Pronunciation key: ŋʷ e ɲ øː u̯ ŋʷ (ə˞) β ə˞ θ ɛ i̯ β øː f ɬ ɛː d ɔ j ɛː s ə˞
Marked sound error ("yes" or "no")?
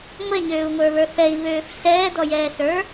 no